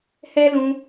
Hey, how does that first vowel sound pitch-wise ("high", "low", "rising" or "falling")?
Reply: high